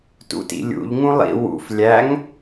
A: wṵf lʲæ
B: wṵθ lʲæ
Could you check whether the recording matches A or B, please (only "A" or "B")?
A